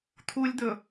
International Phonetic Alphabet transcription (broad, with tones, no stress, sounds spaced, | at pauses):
t̪ʰ u˦ lʲ d̪ ɵ˨